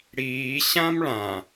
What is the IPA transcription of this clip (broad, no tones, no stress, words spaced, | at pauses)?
ɽiː ɕãmɭã